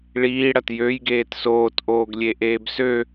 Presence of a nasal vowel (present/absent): absent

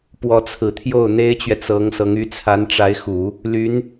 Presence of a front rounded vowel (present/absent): present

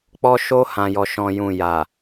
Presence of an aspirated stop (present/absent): absent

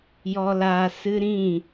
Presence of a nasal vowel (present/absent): present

